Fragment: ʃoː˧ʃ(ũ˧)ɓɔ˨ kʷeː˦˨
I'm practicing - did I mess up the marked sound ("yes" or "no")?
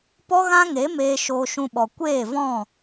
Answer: no